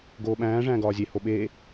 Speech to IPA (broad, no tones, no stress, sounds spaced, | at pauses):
ɡ oː ɓ æ̃ː ʐ æ̃ː ɡ ɒː zʲ e h o ɓ eː